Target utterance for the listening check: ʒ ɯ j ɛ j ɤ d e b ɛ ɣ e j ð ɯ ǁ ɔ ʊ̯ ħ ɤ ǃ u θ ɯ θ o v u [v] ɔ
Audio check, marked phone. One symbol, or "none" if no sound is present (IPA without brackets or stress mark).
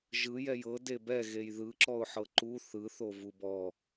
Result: b